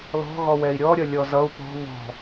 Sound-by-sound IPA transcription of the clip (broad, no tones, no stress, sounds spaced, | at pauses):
l ɔ̤ ɣ ɔ w ɛ i̯ ɾʲ ɔ ɾʲ ʌ lʲ ɔ z ʌ u̯ p ɔ̤ β ɔ̤